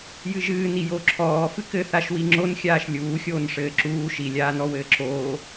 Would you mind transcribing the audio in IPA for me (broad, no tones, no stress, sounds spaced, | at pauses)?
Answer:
j ɨ ʒ ɨː n i j o ǁʰ ɔː f ɨ k ɘ θ a ʃ w i ŋ͡ǁ o n xʲ aː ʃ lʲ uː xʲ oː n ʂ ɘː ǁ uː ʃ i lʲ aː n ɔ w ɘː ǁ oː